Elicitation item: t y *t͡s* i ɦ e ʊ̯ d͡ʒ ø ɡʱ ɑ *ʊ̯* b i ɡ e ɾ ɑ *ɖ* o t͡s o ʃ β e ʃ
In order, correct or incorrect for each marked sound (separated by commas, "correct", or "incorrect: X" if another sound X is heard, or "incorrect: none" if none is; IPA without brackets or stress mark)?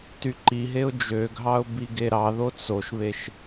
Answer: incorrect: ǃ, correct, incorrect: ð